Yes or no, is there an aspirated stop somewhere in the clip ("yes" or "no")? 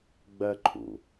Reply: yes